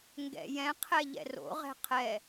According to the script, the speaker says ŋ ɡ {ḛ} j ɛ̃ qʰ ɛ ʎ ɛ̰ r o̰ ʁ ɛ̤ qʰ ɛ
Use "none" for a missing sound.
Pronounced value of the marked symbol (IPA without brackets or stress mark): ɛ̰